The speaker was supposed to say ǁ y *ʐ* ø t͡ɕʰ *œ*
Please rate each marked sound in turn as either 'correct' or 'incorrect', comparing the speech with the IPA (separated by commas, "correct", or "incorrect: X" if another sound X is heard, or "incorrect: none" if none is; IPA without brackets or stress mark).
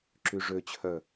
correct, correct